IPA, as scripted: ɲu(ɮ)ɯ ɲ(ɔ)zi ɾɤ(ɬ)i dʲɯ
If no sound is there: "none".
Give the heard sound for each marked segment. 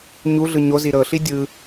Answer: ɮ, o, ɬ

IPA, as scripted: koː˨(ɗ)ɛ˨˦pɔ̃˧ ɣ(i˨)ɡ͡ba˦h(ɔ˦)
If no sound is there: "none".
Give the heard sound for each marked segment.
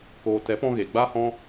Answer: t, e˨, ɔ̃˦

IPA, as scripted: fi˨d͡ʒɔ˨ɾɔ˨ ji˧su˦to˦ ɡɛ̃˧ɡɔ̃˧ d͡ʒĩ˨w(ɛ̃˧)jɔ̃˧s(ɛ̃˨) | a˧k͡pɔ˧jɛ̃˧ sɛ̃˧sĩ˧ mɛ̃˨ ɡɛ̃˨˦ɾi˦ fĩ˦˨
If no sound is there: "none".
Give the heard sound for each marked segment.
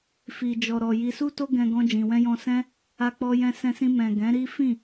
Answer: ɛ̃˧, ɛ̃˦

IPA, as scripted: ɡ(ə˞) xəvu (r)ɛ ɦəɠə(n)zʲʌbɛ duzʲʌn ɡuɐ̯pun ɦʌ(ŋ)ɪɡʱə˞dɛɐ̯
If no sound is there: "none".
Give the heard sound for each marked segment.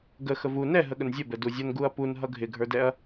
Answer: ə, n, n, ɡʱ

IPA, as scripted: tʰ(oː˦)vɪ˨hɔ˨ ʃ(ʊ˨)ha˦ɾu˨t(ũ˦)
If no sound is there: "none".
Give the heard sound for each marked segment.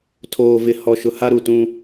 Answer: oː˨, ʊ˨, ũ˦

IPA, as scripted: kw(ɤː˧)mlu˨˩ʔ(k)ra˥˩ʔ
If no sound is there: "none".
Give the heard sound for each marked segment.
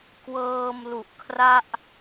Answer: ɤː˧, kʰ

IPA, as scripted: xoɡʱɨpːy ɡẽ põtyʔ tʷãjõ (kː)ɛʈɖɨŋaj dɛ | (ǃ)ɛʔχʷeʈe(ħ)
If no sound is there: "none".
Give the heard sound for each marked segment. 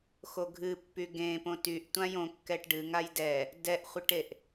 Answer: kː, d, ʔ

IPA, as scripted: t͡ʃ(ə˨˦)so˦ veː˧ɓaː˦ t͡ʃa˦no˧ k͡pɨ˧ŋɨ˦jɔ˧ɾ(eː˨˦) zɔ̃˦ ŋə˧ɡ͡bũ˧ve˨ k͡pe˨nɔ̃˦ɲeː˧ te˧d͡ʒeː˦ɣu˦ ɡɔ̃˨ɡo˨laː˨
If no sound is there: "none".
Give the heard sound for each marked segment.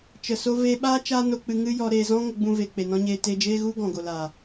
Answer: ə˨, eː˧

